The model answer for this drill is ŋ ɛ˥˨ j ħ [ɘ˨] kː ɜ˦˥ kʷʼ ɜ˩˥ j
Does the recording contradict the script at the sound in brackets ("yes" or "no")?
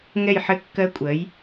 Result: yes